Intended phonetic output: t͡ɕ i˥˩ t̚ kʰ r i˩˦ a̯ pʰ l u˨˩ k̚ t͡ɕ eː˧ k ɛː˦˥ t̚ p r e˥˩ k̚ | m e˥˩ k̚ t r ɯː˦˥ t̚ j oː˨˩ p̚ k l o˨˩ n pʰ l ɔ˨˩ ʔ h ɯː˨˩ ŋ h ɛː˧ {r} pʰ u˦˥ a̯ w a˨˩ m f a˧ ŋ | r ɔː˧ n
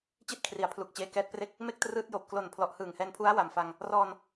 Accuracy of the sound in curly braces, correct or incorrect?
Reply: incorrect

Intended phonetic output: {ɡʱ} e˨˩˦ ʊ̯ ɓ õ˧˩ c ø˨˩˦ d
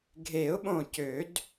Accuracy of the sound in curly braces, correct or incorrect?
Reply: correct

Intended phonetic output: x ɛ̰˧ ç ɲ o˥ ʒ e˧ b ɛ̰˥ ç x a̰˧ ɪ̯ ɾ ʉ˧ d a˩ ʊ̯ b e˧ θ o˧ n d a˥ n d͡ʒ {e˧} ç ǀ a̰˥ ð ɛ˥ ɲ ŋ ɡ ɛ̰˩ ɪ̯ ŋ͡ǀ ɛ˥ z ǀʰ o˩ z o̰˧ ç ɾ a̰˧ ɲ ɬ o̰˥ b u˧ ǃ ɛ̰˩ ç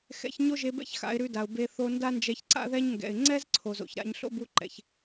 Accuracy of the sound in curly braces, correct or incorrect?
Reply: incorrect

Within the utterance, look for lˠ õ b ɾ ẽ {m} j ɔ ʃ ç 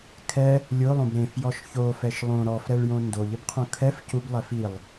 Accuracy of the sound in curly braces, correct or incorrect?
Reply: incorrect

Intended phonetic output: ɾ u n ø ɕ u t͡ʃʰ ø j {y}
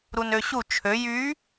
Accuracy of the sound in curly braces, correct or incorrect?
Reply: correct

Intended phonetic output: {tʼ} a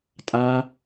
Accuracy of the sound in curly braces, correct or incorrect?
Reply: correct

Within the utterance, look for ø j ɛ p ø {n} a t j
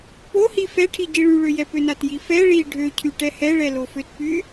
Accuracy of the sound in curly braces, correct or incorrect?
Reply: correct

